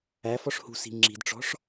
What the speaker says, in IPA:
æ f ɔ ʂ h ṳ s i̤ ŋ͡ǁ i̤ d ʈ͡ʂ ɔ̤ ʂ

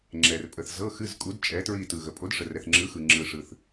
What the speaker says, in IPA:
ŋ͡ǁ ɛ˨ r pʼ ə˨ θ z ɤ˧˥˧ x ɨ˧˥˧ z kʼ u˨˥ d t͡ʃʼ ɛ˨˥ t ɹ i˦˨ t ɯ˨ ɣ ə˨ pʼ o˨˥ d ʂ ə˨ r ɛ˨ θ ŋ͡ǁ ɯ˨˥ x ɯ˨ ŋ͡ǁ ɯ˨ ʂ ɯ˨ θ

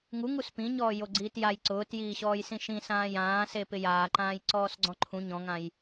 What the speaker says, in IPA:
ŋ u ŋ u s p ĩ ɲ ɔː j o ɡ͡ǀ iː t j a j ǀ ʊː t j iː ɕ ɔː j s ĩ ʃ ĩ s ãː j ãː s e p ɪ j aː ǃ ãː j ǀ ɔː s ɡ͡ǀ ɔ̃ ǃʰ ũ ɲ ɔ̃ ŋ ã j

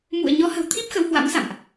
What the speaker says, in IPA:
m ṵ˧˨ ə̯ ɲ ɔ˨˦ h ə̤˨˩ w t̪ʰ i˦˥ p̚ x ə˨˦ w h w a̰˧˥ m s a̰˧˨ m ʔ

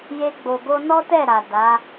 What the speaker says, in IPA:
j e˧ ɡ͡b o˨ ɡ o˧ n ɔ˦ t ɛ˦˨ ɾ a˨ d a˨˦

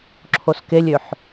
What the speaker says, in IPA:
ǁʰ o s k e lʲ ø ħ

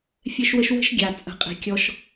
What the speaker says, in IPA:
fʲ ɛ˦ ʃ w ə˦ ʃ w ə̤˦ ʃ ɡʲ a˨ t͡sʼ ə̤˨˦ qʼ i̤˨ kʲ ɔ˦ ʃ

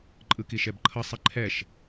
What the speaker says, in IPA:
ǃʼ ɯ k i ʃ ɛ b ǃʰ ʌ sˤ i ǃʰ ɛ ʃ

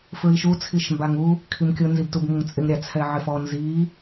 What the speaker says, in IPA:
f ɹ i ʃ u t͡sʰ i ʃ m b a ŋ u | kʰ i m kʲ ʊ n z i b t u b ŋ ʊ ŋ t͡sʼ ɪ ŋ ɾʲ a t͡sʰ ɛ ʕ ɪ f ɔ n z i

